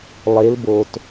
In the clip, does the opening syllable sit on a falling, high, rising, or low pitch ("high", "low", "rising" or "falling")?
rising